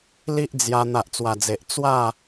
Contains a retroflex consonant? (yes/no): no